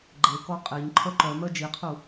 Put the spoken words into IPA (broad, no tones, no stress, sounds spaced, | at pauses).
ɡ͡ǃ e k ɔ qʼ e ɲ ǃʰ œ ǃ œ m œ d͡ʒ i qʰ u